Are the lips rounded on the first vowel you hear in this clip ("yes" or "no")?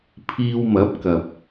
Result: no